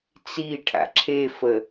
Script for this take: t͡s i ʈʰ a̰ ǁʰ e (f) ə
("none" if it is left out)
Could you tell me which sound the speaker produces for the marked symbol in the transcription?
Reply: f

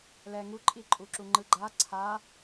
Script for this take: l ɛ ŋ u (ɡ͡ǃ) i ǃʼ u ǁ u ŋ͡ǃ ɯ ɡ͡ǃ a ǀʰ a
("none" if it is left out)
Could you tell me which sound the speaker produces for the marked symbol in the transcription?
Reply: ǃʼ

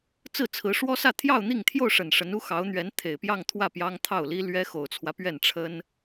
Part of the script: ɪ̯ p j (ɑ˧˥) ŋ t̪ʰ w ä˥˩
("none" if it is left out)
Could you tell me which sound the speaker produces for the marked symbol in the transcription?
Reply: ɑ˥˧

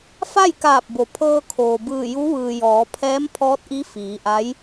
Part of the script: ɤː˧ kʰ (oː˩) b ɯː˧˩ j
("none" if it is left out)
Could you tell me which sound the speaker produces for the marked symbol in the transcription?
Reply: oː˩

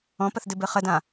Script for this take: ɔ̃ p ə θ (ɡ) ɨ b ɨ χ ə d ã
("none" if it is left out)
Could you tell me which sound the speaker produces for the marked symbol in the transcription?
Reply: d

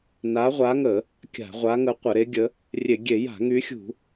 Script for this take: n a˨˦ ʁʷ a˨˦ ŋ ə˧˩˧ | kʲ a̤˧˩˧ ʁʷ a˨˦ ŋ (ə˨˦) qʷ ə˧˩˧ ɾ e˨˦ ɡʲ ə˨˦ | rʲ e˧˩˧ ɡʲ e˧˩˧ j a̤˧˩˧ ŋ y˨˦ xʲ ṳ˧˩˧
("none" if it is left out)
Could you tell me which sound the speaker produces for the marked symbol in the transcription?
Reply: ə˨˦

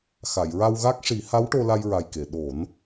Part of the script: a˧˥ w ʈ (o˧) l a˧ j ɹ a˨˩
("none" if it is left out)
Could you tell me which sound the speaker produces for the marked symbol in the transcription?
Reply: o˧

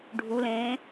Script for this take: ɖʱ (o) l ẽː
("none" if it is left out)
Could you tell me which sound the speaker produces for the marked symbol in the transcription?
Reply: u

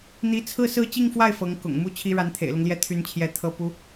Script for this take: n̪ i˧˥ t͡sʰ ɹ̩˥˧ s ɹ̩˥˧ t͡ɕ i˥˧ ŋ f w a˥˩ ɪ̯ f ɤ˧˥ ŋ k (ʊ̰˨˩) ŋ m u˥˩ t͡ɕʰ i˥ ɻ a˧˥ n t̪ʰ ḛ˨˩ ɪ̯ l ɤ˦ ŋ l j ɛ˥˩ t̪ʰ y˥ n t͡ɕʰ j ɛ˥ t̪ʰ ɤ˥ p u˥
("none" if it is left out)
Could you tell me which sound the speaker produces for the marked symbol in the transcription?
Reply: ʊ̰˨˩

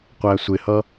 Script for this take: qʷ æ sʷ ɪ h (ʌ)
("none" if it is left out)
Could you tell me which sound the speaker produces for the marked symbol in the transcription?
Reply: ʌ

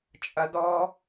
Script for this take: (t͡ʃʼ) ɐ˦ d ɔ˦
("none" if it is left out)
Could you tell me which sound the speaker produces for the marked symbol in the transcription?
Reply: t͡ʃʼ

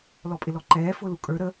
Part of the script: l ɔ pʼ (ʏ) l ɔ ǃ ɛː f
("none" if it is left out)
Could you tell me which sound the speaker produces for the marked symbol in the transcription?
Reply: ɪ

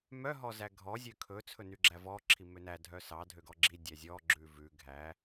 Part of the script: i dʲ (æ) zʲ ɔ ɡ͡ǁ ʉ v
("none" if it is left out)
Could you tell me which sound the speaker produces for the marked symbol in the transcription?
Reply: æ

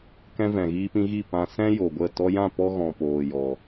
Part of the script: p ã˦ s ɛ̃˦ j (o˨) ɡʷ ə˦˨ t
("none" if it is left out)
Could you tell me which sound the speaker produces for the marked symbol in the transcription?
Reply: o˨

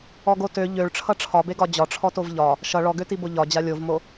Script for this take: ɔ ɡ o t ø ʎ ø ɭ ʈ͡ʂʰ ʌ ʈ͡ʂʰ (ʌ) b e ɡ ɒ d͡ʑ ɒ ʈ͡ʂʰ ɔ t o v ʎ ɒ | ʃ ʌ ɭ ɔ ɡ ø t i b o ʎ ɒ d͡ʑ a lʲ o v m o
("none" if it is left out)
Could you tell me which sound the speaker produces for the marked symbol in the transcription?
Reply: ɒ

